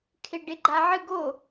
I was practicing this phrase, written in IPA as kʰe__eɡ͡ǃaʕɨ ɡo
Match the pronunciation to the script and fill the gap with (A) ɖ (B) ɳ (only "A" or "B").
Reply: A